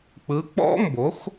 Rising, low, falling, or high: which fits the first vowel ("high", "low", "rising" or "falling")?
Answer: rising